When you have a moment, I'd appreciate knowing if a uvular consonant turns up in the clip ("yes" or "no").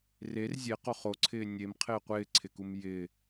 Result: yes